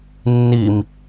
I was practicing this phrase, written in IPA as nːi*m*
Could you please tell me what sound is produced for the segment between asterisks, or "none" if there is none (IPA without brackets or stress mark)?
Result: m